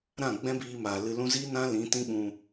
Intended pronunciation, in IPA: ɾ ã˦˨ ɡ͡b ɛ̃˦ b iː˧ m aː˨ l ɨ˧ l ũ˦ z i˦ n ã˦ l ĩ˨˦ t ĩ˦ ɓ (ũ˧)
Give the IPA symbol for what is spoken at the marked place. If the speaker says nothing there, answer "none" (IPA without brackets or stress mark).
ũ˧